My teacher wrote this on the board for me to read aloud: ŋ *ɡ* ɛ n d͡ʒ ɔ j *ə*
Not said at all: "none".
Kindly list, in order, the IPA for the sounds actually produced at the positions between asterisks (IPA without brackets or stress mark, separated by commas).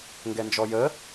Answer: ɡ, ə